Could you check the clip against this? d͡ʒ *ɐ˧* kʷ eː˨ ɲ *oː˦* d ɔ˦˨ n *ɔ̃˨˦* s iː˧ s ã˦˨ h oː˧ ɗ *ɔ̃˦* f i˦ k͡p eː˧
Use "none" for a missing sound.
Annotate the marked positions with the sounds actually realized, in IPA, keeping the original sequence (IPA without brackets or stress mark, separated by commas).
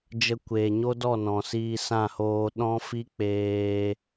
ə˧, o˦, ɔ̃˨, ɔ̃˦